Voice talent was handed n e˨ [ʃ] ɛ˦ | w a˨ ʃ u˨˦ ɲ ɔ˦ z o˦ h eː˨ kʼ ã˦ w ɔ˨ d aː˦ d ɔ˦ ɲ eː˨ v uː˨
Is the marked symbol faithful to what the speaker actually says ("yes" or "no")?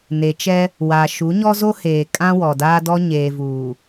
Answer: no